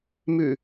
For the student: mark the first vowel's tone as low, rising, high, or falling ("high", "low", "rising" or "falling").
low